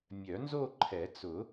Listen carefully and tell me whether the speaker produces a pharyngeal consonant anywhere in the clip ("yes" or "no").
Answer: no